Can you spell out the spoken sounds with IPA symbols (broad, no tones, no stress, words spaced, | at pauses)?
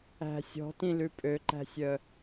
æ̤ sʲɔ̤tĩlʉ pʼøǃæ̤sʲœ